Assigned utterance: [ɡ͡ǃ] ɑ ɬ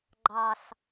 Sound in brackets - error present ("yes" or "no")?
no